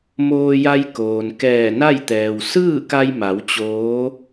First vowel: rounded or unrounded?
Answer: rounded